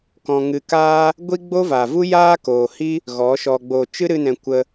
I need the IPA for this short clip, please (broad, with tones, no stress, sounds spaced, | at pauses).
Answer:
k ɔ̃˧ ŋ ɨ˧ k aː˦ | ɡʷ i˦ ɡ͡b o˦ v aː˨ v u˦ j aː˦ k oː˨ h i˦ | ɣ ɔ˨˦ ʃ ɔ˧ ɡ͡b oː˨ t͡ʃ ɨ˦ ɾ ɨ˧ n ɛ̃˨ kʷ ə˧